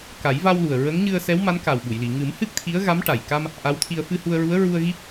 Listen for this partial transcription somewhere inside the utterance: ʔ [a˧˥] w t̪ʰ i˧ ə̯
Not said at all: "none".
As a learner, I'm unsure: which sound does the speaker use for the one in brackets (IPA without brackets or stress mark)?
a˧˥